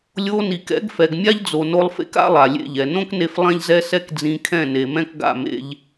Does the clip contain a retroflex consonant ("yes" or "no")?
no